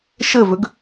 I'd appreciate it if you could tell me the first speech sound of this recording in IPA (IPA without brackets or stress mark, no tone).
ʃ